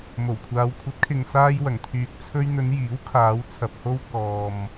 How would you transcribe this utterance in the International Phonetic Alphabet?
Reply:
mo˨˩wkʷʰaː˨˧w kʷʰɐ˨˥t̚kʰɪ˨ŋ saː˧jwɐ˨˩ŋt̪ʰyː˨k̚ t͡sʰɵ˧ɥn̪ɵ˨˧n jiː˨˥wkʰaː˨˧w t͡sʰɐ˨p̚ ho˧w kɔː˨m

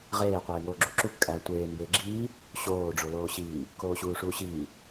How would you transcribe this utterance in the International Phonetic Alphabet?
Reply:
ʁeː qʷeːŋoːɡ͡ǁuǁu kʼæ tʷeː mbeɡ͡ǁiː | ɕoː ɖ͡ʐoloːɕiː | koːɕuːʂuːɕiː

